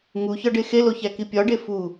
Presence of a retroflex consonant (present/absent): present